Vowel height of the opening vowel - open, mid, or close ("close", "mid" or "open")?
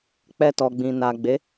mid